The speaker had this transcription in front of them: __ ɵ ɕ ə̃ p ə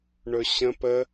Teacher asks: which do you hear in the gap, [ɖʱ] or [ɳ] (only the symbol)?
ɳ